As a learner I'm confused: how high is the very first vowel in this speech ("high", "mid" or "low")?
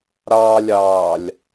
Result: low